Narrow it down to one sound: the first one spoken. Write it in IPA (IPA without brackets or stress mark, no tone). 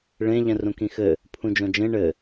ɭ